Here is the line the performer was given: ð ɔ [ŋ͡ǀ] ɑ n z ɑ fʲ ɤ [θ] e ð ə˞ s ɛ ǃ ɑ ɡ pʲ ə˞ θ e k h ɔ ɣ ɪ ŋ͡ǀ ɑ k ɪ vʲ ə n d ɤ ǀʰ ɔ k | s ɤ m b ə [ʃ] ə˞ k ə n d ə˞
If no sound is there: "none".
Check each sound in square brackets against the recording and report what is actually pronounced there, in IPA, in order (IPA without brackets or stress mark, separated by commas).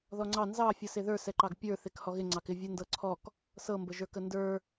ŋ͡ǀ, s, ʒ